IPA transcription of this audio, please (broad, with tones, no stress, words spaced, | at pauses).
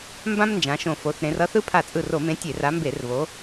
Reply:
mbã˥mnd͡ʒã˨˦ ʃõ˧˩ fo˨˦θɾẽ˨˦rʌ˥θɯ˥ pʰa˧˩t͡sʼɯ˧˩ro˧˩˧mẽ˨˦ tʲe˧˩˧ra˨˦mbe˧˩˧r βo˨˦